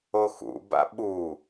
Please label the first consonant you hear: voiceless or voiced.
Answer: voiceless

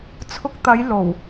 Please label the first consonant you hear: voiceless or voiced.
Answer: voiceless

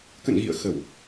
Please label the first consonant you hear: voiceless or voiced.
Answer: voiceless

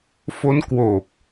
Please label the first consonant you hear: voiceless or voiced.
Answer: voiceless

